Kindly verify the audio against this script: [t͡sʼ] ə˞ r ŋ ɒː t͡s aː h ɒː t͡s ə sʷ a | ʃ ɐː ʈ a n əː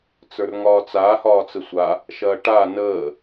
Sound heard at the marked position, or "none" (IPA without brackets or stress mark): t͡s